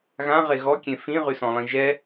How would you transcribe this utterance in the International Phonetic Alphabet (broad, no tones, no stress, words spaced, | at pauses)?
ɣãʁe ɣɔkʲẽ fĩʁysɔ̃lˠĩ ʒɛ